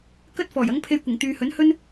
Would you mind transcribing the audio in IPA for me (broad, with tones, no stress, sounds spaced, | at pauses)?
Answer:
k ɐ˥ t̚ f ɔː˨˩ j ɐ˨˥ ŋ pʰ e˧ j kʷ ɪ˨˩ ŋ t̪ yː˨ h ɵ˨˥ n h ɵ˥ n